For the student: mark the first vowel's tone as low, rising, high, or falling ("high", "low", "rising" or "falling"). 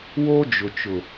high